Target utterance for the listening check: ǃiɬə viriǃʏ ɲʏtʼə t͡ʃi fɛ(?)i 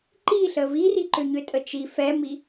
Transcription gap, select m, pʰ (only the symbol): m